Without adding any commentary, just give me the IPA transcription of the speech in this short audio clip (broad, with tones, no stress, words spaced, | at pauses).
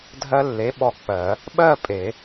dʱɜ˧lːe˩˥ ɓɔ˧k͡pɜ˨˩˦ | ɓɜ˥˨ pʼe˨˩˦